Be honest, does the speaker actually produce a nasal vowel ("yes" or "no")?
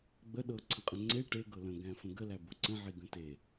yes